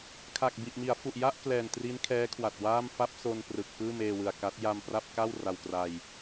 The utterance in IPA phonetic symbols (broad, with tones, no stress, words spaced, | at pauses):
kʰa˨˩k̚ bi˨˩ʔmi˩˦a̯fu˨˩ʔja˥˩ʔ klɛː˨˩ntri˦˥n kʰɛː˦˥kʰwa˨˩t̚waː˥˩m fa˥˩p̚so˧n prɯ˨˩k̚ pɯː˥˩meː˧wɯ˨˩a̯ ka˦˥t̚ ja˧m pra˥˩p̚ka˥˩w ra˧wkra˧j